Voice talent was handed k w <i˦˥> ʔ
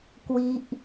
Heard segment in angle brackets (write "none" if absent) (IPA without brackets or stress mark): i˦˥